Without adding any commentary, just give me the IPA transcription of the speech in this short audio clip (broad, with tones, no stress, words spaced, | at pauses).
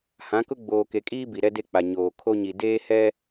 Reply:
hã˨˦kʊ˦ ɡ͡boː˨ke˨kʼiː˦ bi˨ɾɛ˦de˦k͡pa˨ ɲoː˨ kʰo˦ɲi˨ deː˦ hɛ˦